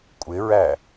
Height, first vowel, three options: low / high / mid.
high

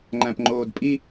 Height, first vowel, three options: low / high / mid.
low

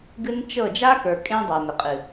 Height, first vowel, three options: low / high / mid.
high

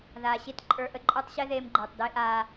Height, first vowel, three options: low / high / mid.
low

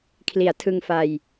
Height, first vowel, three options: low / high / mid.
high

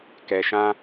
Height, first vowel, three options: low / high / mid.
mid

